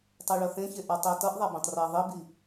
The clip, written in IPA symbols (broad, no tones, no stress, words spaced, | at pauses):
tˤɛɭʌθẽçe ʔatˤetʌʔðˤa bẽtˤreɐ̯ðˤibi